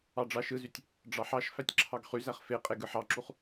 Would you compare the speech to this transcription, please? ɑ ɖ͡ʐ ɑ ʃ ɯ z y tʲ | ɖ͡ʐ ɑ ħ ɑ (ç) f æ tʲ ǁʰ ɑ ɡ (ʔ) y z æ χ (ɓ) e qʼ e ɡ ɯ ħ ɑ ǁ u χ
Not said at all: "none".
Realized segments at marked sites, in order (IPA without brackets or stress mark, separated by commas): ʃ, χ, f